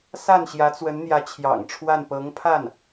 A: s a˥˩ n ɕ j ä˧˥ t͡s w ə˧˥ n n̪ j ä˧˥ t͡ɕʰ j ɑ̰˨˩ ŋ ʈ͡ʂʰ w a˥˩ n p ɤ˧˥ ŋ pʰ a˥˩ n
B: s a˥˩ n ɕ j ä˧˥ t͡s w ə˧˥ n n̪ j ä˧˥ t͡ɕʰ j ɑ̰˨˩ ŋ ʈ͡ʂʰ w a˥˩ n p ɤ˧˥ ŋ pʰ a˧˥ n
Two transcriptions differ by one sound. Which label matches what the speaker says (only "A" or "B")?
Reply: A